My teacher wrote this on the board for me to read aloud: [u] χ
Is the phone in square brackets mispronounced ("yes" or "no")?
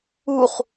no